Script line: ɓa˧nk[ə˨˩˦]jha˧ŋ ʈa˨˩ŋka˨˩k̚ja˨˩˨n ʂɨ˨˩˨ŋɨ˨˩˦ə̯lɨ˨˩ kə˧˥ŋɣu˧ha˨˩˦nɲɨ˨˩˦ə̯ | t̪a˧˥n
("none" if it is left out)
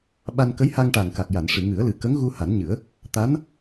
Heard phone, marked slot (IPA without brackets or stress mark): ə˧˥